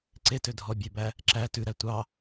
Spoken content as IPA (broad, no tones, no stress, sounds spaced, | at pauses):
ǀ e t ø dʱ ɔ bʲ ø b æ | ǁ æ t ʉ ɾ æ tʷ ɑ